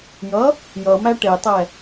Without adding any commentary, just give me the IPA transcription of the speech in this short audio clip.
jʌ | jʌmæ ʈetˤɛ

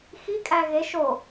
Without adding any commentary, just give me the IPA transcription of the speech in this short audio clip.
xikʼæ ɣe ʃo

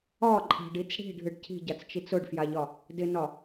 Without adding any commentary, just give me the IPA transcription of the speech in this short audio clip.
ɒǃʼa̤ɖit͡s ɽi̤ɖʱɨɖ cʰi̤ɟat͡st͡ʃit͡s ʊɖfjaʎɒ | dɪnɒ

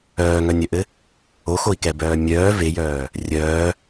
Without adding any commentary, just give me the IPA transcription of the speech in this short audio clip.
œːŋœnʲœʔɘ | oxoi̯kɛbœː mʲœː vejœː | rʲœː

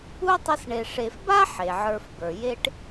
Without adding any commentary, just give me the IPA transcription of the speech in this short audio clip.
u˥tˤə˦sɳe˨ ʂe˨fba˥ ħe˩ʕə˞˨fbə˞˩je˦ʈ

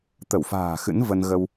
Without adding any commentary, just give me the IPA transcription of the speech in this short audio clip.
t̪ə˧˩wfa̤ː˨˩ xɨ̰˧˥nvə˧n ɣə˧w

